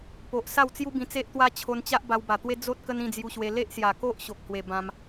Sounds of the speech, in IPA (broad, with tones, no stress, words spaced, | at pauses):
po˨ʔsa˥˧w t͡sju˦bĩ˧t͡se˦ʔt̪wa˦ t͡ɕʰo˧nt͡ɕa˦ʔ ba˧wba˨˩t̪we˦ d͡zo˦t̚ kə˦nĩ˥˧d͡zju˧ɕwe˧ le˦ʔsja˨˩ko˦ʔ ɕo˨k̚hwe˨˩ bã˧m